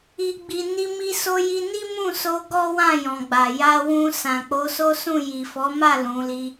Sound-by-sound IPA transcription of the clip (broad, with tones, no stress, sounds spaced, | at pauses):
i˨ ɡ͡b i˨ n i˧ m i˧ s o˧ j i˧ n i˦ m ũ˦˨ s o˧ ɡ ɔ˦ w ã˦˨ j ɔ̃˨ ɡ͡b a˨ j a˧ w ũ˧ s ã˨ k͡p o˨˦ s o˦ s ũ˦˨ j i˨ f ɔ˨˦ m a˦˨ l ũ˨˦ l i˦